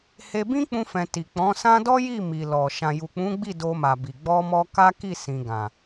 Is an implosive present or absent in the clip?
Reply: absent